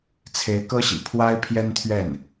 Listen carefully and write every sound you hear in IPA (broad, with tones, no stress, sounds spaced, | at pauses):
t͡sʰ e˧˥ ɪ̯ k ɤ˥ ɕ ḭ˨˩ pʰ w a˥ ɪ̯ pʰ j ɛ˥ n t̪ʰ ɥ ɛ˥˩ n